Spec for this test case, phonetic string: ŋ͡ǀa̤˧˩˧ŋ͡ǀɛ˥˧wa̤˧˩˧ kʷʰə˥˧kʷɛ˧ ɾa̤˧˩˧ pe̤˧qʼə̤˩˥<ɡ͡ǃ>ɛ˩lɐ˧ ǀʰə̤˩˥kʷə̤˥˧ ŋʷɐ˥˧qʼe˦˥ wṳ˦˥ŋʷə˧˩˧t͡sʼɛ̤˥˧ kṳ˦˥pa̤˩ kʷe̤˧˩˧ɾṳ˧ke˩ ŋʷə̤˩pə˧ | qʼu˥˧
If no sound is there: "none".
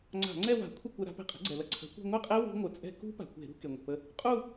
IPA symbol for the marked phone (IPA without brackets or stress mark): ɡ͡ǀ